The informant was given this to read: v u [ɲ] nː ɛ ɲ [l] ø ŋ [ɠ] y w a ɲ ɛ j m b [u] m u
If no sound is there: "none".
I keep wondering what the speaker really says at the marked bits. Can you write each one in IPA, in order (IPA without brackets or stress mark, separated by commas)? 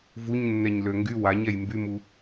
ɲ, l, ɡ, y